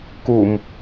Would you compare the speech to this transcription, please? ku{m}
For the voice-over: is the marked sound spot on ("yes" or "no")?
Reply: yes